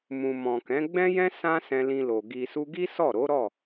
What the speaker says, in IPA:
mũ˨mɔ̃˨kɛ̃˨˦ ɡ͡bɛ̃˦jɛ̃˦ sã˦ sɛ̃˧lĩ˧lo˨ ɡi˨su˧ɡi˦ sɔ˦˨ɾo˨˦ɾɔ˦˨

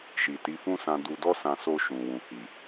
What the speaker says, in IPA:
ʃi˨ti˨˦fũ˦sã˧ du˧dɔ˦sã˧ so˧ʃũ˨wũ˨hi˨

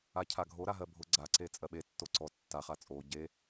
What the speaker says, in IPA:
acʰaɡʱo ɾaɦɜbʱʊ ɡ͡ǀa ǀet͡sʼɜɓe tːoǀɔ tːa χat͡sʼo ɟe

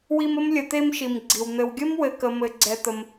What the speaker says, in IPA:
wi˦mə˥m lʲə˨t̪e˦mʃi˩m ɡ͡ǀi˩w n̪ɘ˨wɡʲə˥mwɘ˨kə˨ mɘ˨ɡ͡ǀɛ˨t̪ə˩m

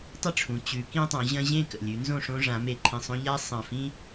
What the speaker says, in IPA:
tˤə˥˨ʈ͡ʂʰũ˩˧ t͡ɕʉ˩˧kĩ˦tˤõ˩˧ ʑɐ̃˦ʑẽ˥˨ kə̰˨˩lʲʉ˩˧ nzõ˥˨ʂõ˦ʐã˩˧ me˨˩ǃʰĩ˨˩sˤõ˦ ʎa˦ sˤɐ̃˨˩fĩ˦

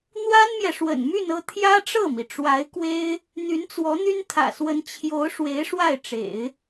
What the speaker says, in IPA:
n̪wa˥nmjɛ˨ ʂwə̰˨˩nmy˥˧nɤ˥˩ t̪ʰjä˥ʈ͡ʂɤ˥˩mi˩ʈ͡ʂwa˧˥ɪ̯ kwe˥ɪ̯ | n̪y˧˥nt͡swɔ˧˥n̪y˥n t̪ʰä̰˨˩swə˧˥n t͡ɕʰjo˧˥ʊ̯ʂwe˧˥ɪ̯ ʂwa˥˩ɪ̯ʈ͡ʂḛ˨˩˦ɪ̯

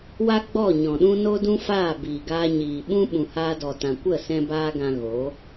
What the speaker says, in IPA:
wa˦ɡ͡bɔ˦˨ɲɔ̃˨ɗũ˦ no˦dũ˦ faː˦˨biː˨ɡaː˧ɲiː˨ ɓũ˦ ɓũ˨haː˧dɔ˨ tã˨kʷə˦˨ sɛ̃˦baː˦ɡã˧ ɣo˨˦

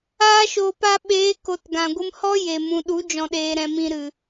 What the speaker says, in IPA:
aː˧ʃoː˨p a˧ɓeː˨˦ ko˨t ɡã˨ɡʷɨ˧mhɔ˦ je˨mũ˨ɗu˨˦ d͡ʒɔ̃˧ɗeː˧ɾɛ̃˧ mĩ˨ ɾɨ˨

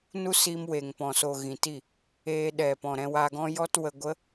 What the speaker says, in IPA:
nu˦siː˧m we˨ŋpɔ̃˨so˨ ɣĩ˨ti˦˨ | eː˦ ɗɛ˨pɔ̃˨ ɾɛ̃˧waː˧ɡɔ̃˦ jɔ˦t wə˧ɡʷə˦

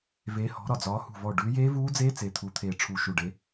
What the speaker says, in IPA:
ve˨˦ hɔ̤˨˦ɾɒ˧˩ d͡zɒː˨˦hṳ˧˩vɔ˧˩ ɖʉ˨˦jeː˦˥vuː˦˥d͡zeː˦˥ t͡se˨˦t̪ʰu˨˦t̪ʰe˧˩ ʈ͡ʂʰu˧˩ʃu˧˩ɖe˨˦

